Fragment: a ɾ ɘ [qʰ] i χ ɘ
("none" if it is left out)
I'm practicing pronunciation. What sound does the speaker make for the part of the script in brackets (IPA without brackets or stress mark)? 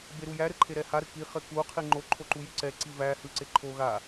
k